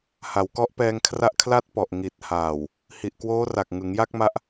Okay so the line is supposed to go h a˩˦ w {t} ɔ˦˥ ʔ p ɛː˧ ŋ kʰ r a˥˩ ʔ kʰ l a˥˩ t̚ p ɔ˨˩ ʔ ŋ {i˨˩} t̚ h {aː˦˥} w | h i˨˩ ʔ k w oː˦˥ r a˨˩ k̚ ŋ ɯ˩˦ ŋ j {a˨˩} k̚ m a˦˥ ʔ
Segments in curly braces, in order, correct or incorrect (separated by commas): incorrect, correct, incorrect, incorrect